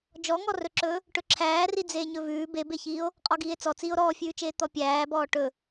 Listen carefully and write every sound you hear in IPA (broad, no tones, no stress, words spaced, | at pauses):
d͡ʒɔŋɔrɵǁɵː | ʈɵǁʰæːri d͡zeːɲɵvʉː bebeçiːo̯ | qʼɔɡiːe̯t͡sɔ t͡siːo̯ɾɔːfʲʉːt͡ʃeː t̪ɔpʲæːbɔː ʈɵ